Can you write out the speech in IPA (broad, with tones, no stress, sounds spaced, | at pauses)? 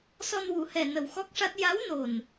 s ɔ˧ n w u˨˩˦ h ɛ˨˩ n ə˨˩ w x ɔ˦˥ k̚ ʂ a˦˥ t̚ j a˧˥ w n o˨˩ n